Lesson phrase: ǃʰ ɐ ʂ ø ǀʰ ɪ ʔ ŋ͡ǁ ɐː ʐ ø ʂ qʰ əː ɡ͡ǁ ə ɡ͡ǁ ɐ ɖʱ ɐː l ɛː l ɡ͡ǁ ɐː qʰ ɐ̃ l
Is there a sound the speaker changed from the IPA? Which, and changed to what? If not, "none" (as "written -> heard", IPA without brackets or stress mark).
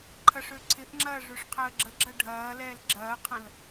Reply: none